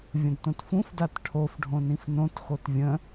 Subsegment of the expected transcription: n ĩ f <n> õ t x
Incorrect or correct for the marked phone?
correct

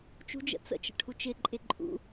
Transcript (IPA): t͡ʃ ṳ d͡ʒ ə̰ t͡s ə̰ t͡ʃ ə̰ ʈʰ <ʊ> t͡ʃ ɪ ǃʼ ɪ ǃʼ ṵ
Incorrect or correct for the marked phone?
incorrect: u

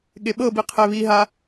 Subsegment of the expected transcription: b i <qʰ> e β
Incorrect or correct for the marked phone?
correct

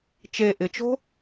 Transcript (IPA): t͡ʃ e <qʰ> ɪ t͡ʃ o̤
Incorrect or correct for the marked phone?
incorrect: ʔ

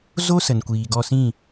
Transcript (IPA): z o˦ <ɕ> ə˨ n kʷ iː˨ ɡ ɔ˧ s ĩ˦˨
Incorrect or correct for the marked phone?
incorrect: s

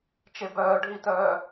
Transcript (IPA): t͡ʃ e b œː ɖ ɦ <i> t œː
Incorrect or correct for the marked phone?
correct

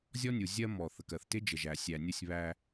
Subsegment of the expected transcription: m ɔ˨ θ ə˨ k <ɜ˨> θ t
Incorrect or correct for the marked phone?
correct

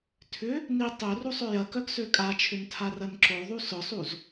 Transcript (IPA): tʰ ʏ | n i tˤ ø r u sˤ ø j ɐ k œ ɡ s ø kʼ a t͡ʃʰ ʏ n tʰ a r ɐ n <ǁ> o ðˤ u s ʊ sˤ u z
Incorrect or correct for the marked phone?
correct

